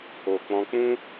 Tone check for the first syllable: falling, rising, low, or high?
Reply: low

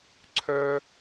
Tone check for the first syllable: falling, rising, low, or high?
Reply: high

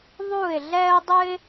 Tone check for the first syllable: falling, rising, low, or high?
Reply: falling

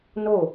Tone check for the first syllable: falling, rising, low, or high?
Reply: falling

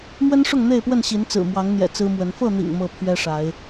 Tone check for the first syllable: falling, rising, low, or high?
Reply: high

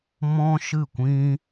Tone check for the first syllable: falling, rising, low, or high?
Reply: high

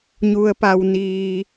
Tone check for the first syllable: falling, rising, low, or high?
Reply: low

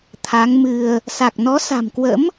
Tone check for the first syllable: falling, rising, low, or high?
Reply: rising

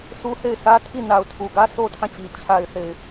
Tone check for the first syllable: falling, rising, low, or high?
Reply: high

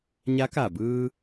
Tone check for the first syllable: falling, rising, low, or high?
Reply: rising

